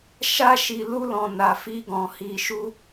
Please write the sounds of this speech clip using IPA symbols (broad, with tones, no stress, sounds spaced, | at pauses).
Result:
ʃ a˦ ʃ i˧ l u˦ l ɔ̃˧ n a˧ f i˦ ɡ ɔ̃˧ h i˧ ʃ u˦